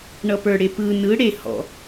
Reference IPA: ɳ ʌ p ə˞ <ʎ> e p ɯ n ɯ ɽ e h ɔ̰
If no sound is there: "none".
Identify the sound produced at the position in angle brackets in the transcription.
ɽ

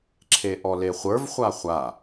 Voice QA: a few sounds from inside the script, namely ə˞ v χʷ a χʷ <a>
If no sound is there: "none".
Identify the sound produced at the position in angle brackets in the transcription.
a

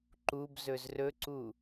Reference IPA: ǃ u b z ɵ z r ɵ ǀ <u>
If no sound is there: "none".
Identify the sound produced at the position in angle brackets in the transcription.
u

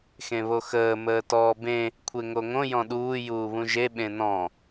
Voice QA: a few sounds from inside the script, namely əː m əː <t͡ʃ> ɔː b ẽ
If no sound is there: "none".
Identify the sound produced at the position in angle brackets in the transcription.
t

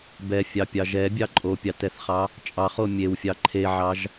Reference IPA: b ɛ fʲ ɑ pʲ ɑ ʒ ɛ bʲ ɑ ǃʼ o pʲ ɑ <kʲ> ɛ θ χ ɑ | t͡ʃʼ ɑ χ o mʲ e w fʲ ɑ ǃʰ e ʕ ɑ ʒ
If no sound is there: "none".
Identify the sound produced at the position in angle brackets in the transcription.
t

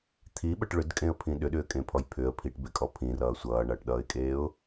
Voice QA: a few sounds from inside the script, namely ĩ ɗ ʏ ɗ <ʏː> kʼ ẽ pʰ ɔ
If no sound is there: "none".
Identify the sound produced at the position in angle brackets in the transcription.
ʏː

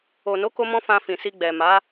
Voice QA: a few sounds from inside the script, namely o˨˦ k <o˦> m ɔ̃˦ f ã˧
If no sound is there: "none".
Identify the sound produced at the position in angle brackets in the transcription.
o˦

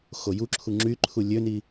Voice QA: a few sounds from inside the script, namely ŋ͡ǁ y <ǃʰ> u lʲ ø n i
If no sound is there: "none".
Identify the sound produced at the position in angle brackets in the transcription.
ǃʰ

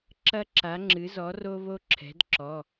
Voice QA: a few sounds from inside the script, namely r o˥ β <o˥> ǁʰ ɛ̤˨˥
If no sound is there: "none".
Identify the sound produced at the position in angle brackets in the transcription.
o˥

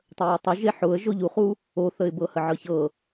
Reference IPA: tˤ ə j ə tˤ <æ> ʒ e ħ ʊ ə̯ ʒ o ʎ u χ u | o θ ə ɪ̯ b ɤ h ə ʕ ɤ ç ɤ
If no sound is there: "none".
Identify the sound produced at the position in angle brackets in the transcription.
ə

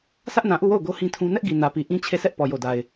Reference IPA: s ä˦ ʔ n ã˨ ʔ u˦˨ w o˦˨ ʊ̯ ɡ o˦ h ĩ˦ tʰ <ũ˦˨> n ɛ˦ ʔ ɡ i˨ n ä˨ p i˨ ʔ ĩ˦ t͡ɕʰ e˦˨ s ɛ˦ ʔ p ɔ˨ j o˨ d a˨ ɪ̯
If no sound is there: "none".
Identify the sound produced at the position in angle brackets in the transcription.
ũ˦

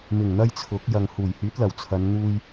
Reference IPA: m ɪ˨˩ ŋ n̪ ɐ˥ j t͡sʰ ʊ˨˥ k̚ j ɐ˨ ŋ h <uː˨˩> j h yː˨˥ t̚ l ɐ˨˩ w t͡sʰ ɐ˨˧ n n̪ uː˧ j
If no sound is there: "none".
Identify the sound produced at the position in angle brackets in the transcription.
uː˨˩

